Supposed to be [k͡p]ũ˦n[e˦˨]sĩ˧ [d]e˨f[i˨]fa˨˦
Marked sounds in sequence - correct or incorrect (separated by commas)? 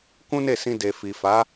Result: incorrect, correct, correct, correct